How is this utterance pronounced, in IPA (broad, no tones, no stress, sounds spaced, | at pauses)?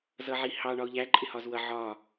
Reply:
z ʌ ʕ i h ɑ ɳ ɒ ʊ̯ ʎ æ ǃʼ ɪ h ɒ z w ʌ ʕ ɒ